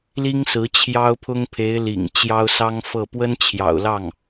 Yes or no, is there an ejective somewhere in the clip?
no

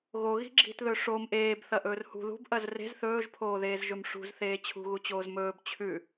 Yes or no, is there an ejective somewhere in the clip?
no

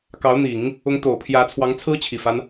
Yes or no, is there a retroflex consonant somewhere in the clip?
no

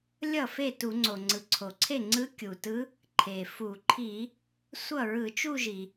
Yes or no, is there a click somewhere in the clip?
yes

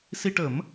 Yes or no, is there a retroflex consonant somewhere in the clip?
yes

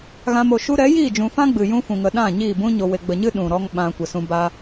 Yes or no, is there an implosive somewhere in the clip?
yes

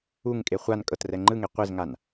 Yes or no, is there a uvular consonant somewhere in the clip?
yes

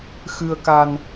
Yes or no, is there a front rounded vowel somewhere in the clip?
no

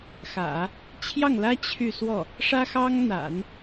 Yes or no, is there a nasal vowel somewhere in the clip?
no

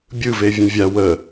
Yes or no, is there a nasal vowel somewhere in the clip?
yes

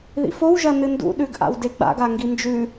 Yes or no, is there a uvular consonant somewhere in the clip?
no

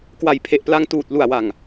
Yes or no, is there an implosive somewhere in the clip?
no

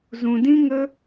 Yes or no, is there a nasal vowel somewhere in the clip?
yes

